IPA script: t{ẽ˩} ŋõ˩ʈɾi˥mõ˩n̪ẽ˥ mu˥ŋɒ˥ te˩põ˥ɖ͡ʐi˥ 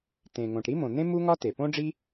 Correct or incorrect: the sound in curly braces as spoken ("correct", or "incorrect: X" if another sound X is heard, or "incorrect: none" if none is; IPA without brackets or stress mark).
correct